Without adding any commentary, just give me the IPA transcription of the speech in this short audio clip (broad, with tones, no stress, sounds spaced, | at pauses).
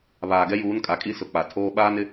β aː˨ ɡ ɛ˦ j uː˨˦ n kʼ a˨ kʼ i˦ s ʊ˨ k͡p a˨ tʰ oː˦ ɓ aː˦ n ɪ˦